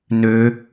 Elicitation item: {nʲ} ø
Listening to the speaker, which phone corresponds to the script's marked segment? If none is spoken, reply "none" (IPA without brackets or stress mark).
n